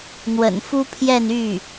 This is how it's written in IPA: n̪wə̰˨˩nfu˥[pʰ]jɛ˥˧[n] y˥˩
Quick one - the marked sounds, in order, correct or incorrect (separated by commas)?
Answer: correct, correct